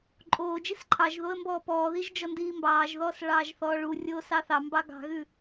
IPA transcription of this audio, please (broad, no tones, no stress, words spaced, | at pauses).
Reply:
ǃʼoːd͡ʒis ǃʰɑʒ ðoə̯mbɔːpɔːðiʒ d͡ʒɔndiːmbɑːʒðɔːs ɭɑːʒθɔːɭurʲoː sɑθɑmbɑ ɡɑ̤ɣʉ